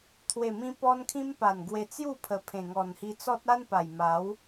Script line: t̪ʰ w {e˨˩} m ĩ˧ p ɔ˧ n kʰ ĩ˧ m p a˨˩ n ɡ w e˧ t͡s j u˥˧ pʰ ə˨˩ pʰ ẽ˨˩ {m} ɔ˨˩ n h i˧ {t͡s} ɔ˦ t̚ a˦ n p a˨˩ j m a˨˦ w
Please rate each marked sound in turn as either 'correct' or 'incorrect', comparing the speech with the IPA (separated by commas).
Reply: correct, incorrect, correct